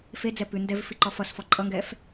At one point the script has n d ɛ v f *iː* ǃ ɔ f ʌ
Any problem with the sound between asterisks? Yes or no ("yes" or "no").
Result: yes